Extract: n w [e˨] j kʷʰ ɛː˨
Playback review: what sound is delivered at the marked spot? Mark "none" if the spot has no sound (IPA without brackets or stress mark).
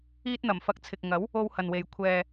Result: e˨